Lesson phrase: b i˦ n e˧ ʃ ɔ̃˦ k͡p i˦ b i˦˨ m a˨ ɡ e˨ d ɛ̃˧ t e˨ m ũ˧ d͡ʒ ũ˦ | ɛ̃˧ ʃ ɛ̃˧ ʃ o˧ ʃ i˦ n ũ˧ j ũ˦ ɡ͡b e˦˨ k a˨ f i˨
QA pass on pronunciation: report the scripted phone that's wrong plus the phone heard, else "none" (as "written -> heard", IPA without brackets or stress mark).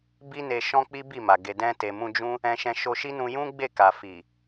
none